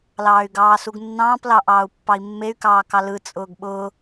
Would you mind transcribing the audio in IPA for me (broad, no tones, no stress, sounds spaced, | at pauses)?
l ɑː y̯ ɡ ɑː s u ɡ nː ɑ̃ː p l ɑ ʔ ɑː u̯ pː ɑ i̯ mː e y̯ k ɑː k ɑ l ɯ t͡sʼ ʊː ɡ ɓ ʊː